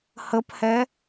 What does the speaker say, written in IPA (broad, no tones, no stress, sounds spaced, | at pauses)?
h ə p h ɛ